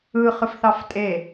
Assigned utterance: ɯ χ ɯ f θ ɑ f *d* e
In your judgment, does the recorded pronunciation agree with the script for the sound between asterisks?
no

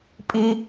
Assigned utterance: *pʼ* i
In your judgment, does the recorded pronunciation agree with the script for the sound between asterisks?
yes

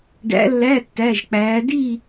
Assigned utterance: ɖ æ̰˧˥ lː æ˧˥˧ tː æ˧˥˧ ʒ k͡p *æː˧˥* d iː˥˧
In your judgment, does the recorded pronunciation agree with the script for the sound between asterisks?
yes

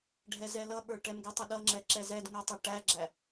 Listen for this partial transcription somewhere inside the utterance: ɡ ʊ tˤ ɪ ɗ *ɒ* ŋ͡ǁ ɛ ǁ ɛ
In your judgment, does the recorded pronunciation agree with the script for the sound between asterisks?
no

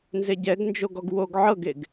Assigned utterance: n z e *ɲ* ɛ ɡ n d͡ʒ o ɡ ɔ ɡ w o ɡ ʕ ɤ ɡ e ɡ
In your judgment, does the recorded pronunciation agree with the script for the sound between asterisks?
no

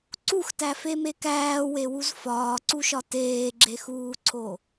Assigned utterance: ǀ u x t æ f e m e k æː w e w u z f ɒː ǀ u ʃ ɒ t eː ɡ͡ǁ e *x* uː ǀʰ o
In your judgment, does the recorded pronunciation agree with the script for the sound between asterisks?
yes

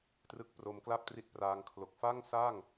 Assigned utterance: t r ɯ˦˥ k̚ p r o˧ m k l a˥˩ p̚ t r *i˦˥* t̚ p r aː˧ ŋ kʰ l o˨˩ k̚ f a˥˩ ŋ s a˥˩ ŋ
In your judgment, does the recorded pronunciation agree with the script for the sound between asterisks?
no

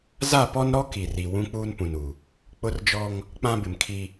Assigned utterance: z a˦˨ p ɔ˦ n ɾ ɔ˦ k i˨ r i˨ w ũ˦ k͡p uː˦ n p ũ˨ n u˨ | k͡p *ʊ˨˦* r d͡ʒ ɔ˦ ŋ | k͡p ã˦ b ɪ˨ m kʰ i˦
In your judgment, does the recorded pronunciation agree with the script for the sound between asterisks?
no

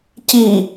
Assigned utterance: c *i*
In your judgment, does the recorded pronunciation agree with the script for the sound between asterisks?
yes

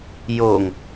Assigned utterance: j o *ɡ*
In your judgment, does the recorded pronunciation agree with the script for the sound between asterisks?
no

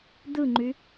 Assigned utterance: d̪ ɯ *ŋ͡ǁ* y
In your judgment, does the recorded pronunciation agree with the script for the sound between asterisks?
no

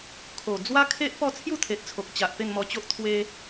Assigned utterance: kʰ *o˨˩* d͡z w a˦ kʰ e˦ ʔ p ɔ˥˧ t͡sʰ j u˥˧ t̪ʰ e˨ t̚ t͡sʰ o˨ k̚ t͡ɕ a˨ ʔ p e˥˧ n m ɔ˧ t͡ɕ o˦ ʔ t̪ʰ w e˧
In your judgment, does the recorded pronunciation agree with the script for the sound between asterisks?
yes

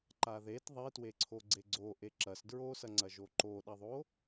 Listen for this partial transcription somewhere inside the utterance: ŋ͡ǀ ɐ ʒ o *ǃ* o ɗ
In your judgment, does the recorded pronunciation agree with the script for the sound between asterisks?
yes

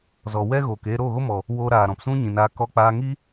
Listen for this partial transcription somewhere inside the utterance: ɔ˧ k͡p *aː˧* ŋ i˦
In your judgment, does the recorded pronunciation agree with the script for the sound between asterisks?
yes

